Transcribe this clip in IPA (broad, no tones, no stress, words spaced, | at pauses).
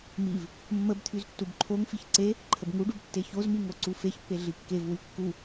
miv | mːəbt̪ʰyz tːubǃʰoŋfiç ǀe | ǃʰəbŋuɖub tːeçozmi ŋoǀufeçpːe ɮikːevwy kːu